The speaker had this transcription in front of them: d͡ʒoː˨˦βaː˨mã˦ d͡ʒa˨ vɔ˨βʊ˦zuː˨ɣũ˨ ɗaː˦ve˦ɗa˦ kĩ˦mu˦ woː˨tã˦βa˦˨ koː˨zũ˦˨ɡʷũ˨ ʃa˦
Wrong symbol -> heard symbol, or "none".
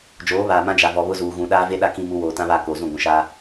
none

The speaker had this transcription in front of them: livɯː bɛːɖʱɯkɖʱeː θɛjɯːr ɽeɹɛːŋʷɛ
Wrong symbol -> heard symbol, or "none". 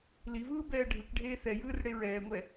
none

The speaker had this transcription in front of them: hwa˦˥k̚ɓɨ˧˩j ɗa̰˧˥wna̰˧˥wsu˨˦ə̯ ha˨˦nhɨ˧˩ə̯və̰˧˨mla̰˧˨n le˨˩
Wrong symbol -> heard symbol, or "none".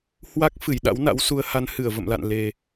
ɓ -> f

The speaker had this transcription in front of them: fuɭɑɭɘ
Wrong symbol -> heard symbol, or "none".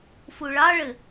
none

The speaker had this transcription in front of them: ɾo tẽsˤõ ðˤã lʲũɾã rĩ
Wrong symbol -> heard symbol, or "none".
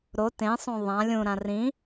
none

